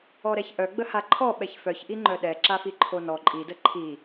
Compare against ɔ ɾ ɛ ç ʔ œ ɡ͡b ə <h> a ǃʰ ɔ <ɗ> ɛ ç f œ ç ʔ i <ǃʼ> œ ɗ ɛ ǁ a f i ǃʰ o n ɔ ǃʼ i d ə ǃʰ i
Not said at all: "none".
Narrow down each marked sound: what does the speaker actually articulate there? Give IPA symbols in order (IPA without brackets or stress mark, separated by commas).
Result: h, ɓ, ŋ͡ǃ